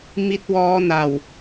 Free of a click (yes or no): yes